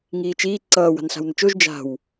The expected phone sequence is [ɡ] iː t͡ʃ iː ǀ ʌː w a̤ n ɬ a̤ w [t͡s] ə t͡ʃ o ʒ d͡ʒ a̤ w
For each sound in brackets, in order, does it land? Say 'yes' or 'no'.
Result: no, no

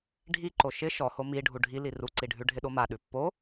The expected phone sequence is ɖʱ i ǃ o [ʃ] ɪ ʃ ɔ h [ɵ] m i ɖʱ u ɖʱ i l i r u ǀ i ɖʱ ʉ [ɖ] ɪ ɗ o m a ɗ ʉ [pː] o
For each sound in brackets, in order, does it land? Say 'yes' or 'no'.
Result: yes, no, no, yes

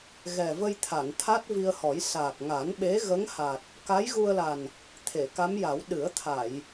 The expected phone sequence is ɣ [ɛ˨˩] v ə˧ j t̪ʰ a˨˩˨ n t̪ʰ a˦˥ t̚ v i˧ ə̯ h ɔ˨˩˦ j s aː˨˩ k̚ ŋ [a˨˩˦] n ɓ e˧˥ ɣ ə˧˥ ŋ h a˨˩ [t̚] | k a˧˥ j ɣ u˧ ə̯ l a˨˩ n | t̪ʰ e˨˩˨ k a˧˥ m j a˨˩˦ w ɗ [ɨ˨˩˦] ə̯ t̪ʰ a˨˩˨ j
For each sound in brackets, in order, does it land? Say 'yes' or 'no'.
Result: yes, yes, yes, yes

